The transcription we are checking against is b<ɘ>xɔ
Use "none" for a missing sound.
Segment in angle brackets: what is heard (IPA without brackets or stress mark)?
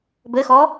ɘ